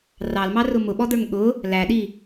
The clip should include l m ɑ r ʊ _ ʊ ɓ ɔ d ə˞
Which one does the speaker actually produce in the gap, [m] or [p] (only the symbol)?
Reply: m